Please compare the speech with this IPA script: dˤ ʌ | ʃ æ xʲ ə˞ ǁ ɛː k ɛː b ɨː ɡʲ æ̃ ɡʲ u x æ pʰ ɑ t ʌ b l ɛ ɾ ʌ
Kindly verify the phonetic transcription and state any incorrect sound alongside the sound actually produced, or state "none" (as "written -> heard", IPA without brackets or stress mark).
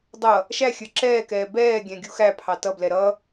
ɨː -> ɛː